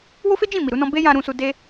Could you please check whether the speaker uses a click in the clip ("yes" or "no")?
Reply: no